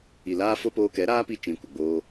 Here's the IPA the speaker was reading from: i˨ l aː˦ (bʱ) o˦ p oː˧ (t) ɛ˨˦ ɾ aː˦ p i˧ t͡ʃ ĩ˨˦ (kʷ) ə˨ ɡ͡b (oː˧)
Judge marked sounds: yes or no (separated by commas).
no, no, yes, yes